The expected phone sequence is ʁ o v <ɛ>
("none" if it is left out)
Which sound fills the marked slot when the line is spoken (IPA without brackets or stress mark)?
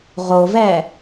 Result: ɛ